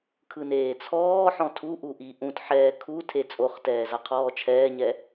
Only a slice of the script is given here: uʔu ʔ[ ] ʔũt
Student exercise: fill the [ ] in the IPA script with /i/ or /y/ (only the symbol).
i